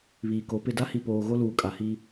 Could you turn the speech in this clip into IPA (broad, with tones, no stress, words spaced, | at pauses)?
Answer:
βiː˨ko˨˦pɪ˦˨ da˦hi˨poː˨ ɣo˦luː˨kʼa˨hiː˦